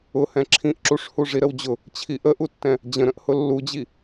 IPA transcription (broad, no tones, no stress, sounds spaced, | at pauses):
ʊ h ɛ̃ ǁʰ ĩ ʔ ǁ u ʂ h u ʐ i ɾ ə w d͡ʑ ʊ | t͡ɕʰ i ʔ ə ʔ u tː ɛ̃ | d͡ʑ ə̃ ɾ ə̃ ʔ h ʊ lː u d͡ʑ i